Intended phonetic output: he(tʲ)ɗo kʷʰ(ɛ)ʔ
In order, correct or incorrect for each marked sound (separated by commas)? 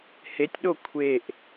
correct, incorrect